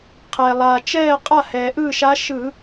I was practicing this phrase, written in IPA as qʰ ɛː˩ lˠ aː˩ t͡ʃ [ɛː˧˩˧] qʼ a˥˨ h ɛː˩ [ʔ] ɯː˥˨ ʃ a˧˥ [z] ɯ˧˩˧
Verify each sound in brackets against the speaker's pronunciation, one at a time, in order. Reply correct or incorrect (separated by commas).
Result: incorrect, correct, incorrect